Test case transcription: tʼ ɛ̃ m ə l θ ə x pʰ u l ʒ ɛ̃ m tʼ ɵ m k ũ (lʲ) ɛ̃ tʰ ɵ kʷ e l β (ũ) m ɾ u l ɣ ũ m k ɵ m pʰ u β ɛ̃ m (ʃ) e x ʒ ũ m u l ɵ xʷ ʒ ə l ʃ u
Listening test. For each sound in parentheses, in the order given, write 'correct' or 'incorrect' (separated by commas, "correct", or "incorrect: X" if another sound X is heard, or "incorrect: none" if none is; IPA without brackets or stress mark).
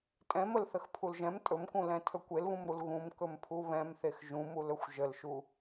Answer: incorrect: l, correct, incorrect: θ